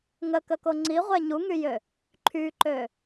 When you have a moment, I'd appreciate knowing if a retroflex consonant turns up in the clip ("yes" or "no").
no